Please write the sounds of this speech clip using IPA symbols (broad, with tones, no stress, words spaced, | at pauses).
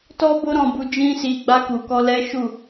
tɔ˦bo˦ ɾɔ̃˧bu˧ d͡ʒĩ˦si˧ ɡ͡ba˧ku˨kɔ˧ lɛ˦ʃu˦˨